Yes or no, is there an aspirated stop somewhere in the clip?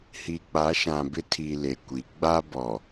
yes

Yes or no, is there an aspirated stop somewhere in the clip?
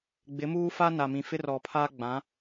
yes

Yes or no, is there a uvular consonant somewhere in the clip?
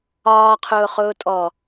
yes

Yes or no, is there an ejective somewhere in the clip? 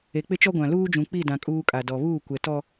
yes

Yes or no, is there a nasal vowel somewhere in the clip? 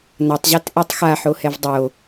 no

